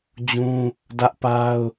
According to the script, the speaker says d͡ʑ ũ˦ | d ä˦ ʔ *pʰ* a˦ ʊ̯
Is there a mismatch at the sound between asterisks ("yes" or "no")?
yes